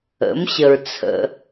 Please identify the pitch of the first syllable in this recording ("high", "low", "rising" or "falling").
rising